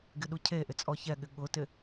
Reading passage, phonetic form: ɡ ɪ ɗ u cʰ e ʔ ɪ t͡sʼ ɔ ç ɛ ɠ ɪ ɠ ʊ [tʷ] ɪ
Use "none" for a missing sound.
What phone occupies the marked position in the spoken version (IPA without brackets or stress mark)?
t